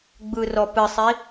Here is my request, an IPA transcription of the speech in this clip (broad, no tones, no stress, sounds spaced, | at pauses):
ɡ͡b ɯ r ɔ p ɨ sˤ i